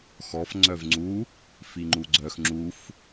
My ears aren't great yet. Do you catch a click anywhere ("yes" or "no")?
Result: yes